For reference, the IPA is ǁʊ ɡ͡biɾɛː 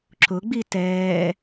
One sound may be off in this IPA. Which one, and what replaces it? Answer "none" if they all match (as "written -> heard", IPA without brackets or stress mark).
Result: ɾ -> t